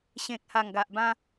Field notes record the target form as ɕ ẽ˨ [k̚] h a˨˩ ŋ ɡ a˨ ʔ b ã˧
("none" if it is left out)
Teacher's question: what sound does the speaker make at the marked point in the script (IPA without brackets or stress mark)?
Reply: k̚